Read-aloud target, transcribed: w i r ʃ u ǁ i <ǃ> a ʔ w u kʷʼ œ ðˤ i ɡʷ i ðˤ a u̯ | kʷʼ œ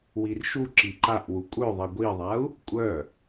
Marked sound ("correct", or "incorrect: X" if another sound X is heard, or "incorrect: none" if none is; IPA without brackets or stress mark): correct